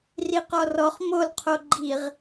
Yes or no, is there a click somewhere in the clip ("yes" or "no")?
yes